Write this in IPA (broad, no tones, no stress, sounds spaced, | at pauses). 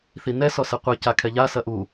θ i n ɛ s ɔ s ɛ qʷ ɨ c a kʰ ɛ ʎ a s ɐ ʔ u